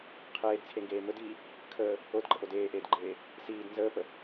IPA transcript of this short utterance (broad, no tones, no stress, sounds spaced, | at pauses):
qʰ eː d t͡sʰ e ŋ ɡ eː m ɵ d iː | kʰ əː | o d ɡ͡ǃ ə ʔ o d eː ʔ eː d ɡ͡ǃ eː | s iː d n z əː p ə